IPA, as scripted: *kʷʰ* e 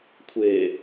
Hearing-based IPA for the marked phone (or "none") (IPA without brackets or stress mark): kʷʰ